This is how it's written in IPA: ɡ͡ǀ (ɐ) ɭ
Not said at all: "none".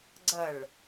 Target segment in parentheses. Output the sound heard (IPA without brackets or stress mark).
ɐ